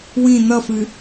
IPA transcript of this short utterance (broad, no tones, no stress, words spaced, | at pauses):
wĩ n̪ʌfɨ